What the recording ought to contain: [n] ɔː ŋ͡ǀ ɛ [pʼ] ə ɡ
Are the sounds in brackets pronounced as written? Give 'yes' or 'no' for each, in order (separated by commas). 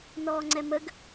yes, no